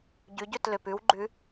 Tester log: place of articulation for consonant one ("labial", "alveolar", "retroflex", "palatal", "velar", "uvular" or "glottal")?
palatal